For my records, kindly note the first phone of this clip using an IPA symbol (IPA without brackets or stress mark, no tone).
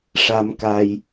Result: ʂ